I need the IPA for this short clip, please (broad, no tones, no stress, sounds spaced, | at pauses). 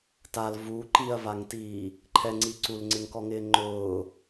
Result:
t a l v u ǃ i ɐ̯ v a ŋ t iː | ǃʰ ɛ ŋ͡ǀ i ǀ u l ŋ͡ǀ ɪ ŋ k ɔ ŋ ɪː ŋ͡ǃ ʊː